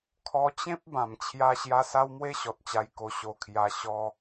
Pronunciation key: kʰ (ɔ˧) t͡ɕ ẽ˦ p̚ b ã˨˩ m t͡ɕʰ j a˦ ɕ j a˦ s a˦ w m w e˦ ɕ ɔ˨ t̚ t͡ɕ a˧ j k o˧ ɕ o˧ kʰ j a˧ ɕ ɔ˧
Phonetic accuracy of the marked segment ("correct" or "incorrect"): correct